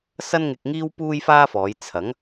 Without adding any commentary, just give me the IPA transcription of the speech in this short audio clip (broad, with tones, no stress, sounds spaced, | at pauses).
s ɐ˥ n ŋ ɪ˧ k̚ ŋ iː˥ w p uː˥ j f aː˥ f ɔː˨˧ j t͡sʰ ɐ˨˥ ŋ